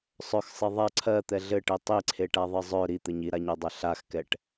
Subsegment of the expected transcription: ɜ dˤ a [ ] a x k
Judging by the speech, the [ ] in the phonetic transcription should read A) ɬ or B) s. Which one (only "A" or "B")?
A